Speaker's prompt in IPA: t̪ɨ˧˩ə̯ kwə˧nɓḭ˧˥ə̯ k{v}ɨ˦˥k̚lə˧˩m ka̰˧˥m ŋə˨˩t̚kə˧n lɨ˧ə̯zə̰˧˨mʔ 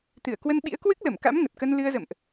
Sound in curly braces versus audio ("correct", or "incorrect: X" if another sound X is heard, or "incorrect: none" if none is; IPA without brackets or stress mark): incorrect: w